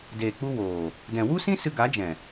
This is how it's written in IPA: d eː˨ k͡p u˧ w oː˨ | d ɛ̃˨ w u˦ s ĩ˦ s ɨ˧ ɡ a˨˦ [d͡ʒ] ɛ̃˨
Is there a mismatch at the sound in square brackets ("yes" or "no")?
no